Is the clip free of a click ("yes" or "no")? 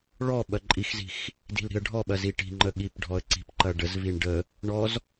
no